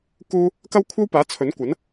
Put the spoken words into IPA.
kuː˥ | kɐ˥wkʷʰɐ˥wpaː˨˥ t͡sʰɵ˨˥nkʷɐ˨˥n

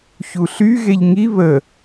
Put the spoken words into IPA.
çuɬy ɣeʎŋi βə

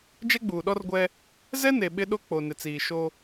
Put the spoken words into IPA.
d͡ʒɛ˦ɡ͡buː˨ɗɔ˦rɡʷɛ˦ | zɛ˦ne˨ ɓɪ˦ɗo˦ k͡po˨nɪ˨t͡siː˨ ʃo˦

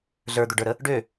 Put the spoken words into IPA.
ɮə˞d̪ɵɖə˞ɾə | ɖø

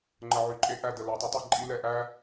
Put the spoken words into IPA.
ŋ͡ǃə˨ʕy˨ǃʼe˦ ʔæ˨ də˨la˨ tˤə˦tˤe˨ ǃʼi˦ lɛ˨ʔæ˦

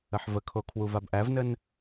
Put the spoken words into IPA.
əħvəkʰo kʰwuvabʔævnən

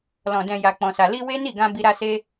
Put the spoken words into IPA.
lɔ̃˨ dɛ̃˨ ja˨k͡pɔ̃˨sa˨ li˧ we˦ni˦˨ɡã˧ bi˧ɾa˦se˦

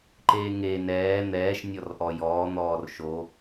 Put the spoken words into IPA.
ǃeːŋe nɛː n̪ɛːʃ nʲɔrʔɔjɔː n̪ɔːrʃo

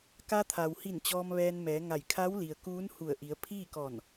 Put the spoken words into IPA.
ka˧t̪ʰa˩whi˧˩n t͡ɕɔː˧mʋɛː˧nmɛː˩˧ŋa˧˩j kʰa˧˥w li˩ə̯ kuː˧˥nhu˧˩ə̯ʔi˩˧ə̯ pʰiː˥˨kɔː˧˩n

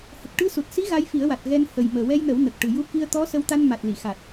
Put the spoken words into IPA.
hə˨˩k̚ʈɨ˧su˨˩t̚si˧˥ ɣa˧˥jfi˨˩˦ə̯wa˨˩t̚ ɣɛ˧n hə˨˩j məː˨˩wɛ˧jnəː˨˩˦w nə˨˩k̚ʈɨ˨˩ju˧˥ ki˧ə̯t̪ɔ˧˥ sə˧wt̪a˧n ma˨˩t̚ li˨˩˨xa˨˩t̚

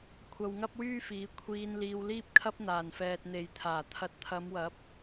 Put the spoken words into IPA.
kʷʰɐ˧wŋɐ˥p̚wyː˥fiː˨˥ kʷʰiː˧n liː˧wliː˥p̚kʰɐ˥p̚ n̪aː˨˩nfɛː˨t̚ n̪e˨jt̪ʰaː˨˩ t̪ʰɐ˨t̚t̪ʰɐ˨˧mwɐ˨˥p̚

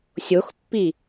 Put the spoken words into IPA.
sʲoxpːi

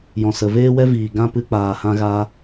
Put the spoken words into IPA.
jɔ̃˨sə˨veː˦wɛ˦ viː˨ ɡã˦pɨ˧ k͡paː˨hã˧ɣa˧

